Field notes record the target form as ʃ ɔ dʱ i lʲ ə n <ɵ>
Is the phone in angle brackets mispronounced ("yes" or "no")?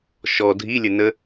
yes